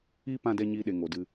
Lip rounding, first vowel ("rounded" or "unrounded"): unrounded